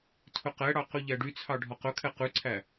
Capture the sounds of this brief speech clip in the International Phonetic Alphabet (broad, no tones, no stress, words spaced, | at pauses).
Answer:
tʰɵqɛɽɑ qyʎæɖyt͡sʰɑ ɖʱɔqɵkʰɛ qʉǀʰæ